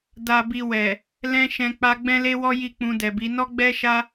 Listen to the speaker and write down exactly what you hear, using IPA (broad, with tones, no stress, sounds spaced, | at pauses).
d a˨ b i˨ w ɛ˨ | l ɛ̃˧ ʃ ɛ̃˧ k͡p a˧ ɡ͡b ɛ̃˦ l e˦ w ɔ˦ j i˦˨ k͡p ũ˧ d ɛ˨ b i˨˦ n ɔ˦ ɡ͡b ɛ˦ ʃ a˦